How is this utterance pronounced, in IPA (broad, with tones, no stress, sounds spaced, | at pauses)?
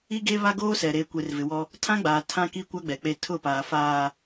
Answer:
i˦ ɡ e˦ β a˦ ɡ oː˦ s ɛ˨ ɾ eː˨ kʷ e˨ r v ɪ˨ w ɔ˦ | tʰ ã˦ ɡ͡b aː˨ tʰ ã˦ k i˦ kʷ a˦ ɡ͡b ɛ˨ k͡p e˦˨ tʰ ʊ˦˨ p aː˨ f aː˨